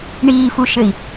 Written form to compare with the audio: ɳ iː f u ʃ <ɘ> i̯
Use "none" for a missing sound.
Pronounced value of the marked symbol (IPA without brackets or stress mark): ɘ